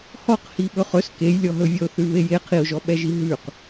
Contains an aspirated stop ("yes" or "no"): yes